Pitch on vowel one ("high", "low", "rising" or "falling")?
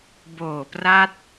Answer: low